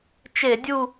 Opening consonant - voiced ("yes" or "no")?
no